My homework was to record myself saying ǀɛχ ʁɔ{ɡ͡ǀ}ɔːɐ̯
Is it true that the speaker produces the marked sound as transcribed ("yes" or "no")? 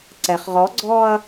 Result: yes